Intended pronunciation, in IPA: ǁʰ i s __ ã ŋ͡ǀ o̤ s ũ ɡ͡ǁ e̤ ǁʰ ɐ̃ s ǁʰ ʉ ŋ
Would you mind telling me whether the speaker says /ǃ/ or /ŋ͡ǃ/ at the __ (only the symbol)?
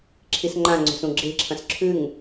ŋ͡ǃ